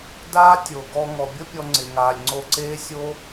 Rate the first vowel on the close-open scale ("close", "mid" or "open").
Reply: open